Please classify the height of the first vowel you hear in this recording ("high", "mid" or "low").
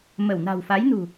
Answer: mid